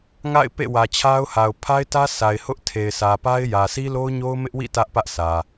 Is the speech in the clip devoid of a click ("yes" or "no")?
yes